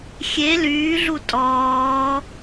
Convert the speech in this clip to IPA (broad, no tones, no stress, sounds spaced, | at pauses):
xʲ e l yː ɮ u tʼ ɔː